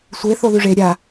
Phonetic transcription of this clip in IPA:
sʷ e θ o ð ʉ ʐ e ɾʲ a

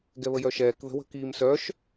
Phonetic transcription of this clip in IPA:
ɡ ɛ β ə j œ ʃ ɛː k ð ə̤ w ə̤ k iː m s œ ʃ

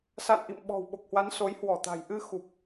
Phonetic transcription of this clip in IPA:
s a̰˧˨ n ʔ ḭ˧˨ m ɓ ɔ̤˨˩ w ɓ o˨˩ k̚ h w a˨˦ n s o˨˦ j h w ɔ˧˩ t̪ a̤˨˩ j ʔ ɨ˧ x u˨˩ p̚

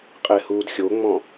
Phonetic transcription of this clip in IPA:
qʼ e h uː d xʲ o ŋ͡m ɔ̃

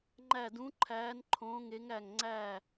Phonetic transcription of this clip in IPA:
ŋ͡ǃ æ˦˨ d ũ˧˥ ǃʰ æː˧˥ n ǃʰ õː˧˥ ŋ e˧˥ ŋ æ˦˨ ŋ ŋ͡ǀ æ˦˨

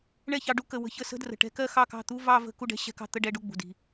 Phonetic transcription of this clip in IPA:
ɳ ɛ˥˩ ç ɑ˧ ɖ u˥˧ k ə˨˩ w ə̤˧˥˧ ç ə˧ s ə̤˧˥˧ d r ə̤˨˩ ʈ ɛ̤˧ k ɜ˥˧ x ɑ˥˩ k ɑ̤˥˩ t̪ u˧˥˧ v ɑ˥˧ v ə̤˥˩ k u˥˩ ɖ ɛ̤˥˧ ɕ ɛ̤˧˥˧ k ɑ̤˥˩ t̪ ə˥˧ ɖ ɛ˧˥˧ ɖ u˥˩ ɡ͡b ṳ˨˩ d i̤˨˩

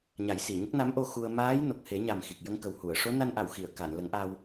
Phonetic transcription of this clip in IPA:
ɲ a˨˩˦ j s i˨˩˨ ɲ ə˦˥ k̚ n a˧˥ m ʔ o˧ x u˧ ə̯ m aː˧˥ j n o˨˩ k̚ h e˨˩˦ ɲ a˨˩ m x i˨˩ k̚ j ə˧ ŋ k ə˨˩ w h u˨˩˨ ə̯ ʂ o˧˥ n a˧ n ʔ a˨˩˨ w x i˨˩˨ ə̯ k a˨˩˨ n l ə˨˩˦ ŋ ʔ a˧ w

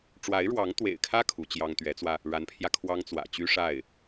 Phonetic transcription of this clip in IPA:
ʈ͡ʂ w a˧˥ ɪ̯ ɻ w ɑ˧˥ ŋ t̪ w ḛ˨˩ ɪ̯ kʰ ä˥ kʰ u˧˥ t͡ɕ j ɑ˥ ŋ t̪ ɥ ɛ˧˥ t͡s w ä˧ | ɻ a˧˥ n pʰ j ä˧ kʰ w ɑ˥ ŋ t͡s w ä̰˨˩ t͡ɕ y˥ ʂ a˥˩ ɪ̯

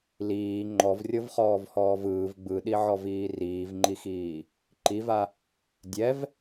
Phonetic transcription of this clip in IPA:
l iː ŋ͡ǃ ɔ v rʲ ɤ v χ ɔː v h ɔː v ɯː v ɡ͡b ɯ ɗ i ʕ ɔ v iː r iː v ŋ͡ǃ i x iː | ǃ i v a | dʲ ɛ v

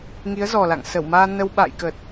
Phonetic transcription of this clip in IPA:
ŋ i˨˦ ə̯ z ɔ˨˩ l a̰˧˨ ŋ s ə˧˩ w m aː˧ n ə˧ w ɓ a̰ː˧˨ j k ə˨˩ t̚

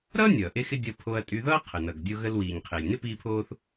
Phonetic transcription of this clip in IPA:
ɾ ʌː˥ nʲ ʌː˩ ʔ e˧ x ɪ˧ dʲ ʌ˧ pʰ o˧ ɐ̯ tʼ y˧ ð ʌː˥ qʰ ə˩ n ʌ˩ ɡ dʲ o˧ ɣ ə˧ l w iː˩ ɲ qʰ e˩ lʲ n ɪ˥ p iː˧ pʰ oː˧ θ

